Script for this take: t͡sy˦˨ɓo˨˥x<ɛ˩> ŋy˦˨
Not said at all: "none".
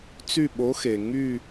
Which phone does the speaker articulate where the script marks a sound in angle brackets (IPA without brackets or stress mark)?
e˩